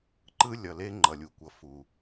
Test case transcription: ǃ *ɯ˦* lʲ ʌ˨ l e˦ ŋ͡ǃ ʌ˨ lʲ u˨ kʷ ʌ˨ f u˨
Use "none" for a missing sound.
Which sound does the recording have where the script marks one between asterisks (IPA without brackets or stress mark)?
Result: ɯ˦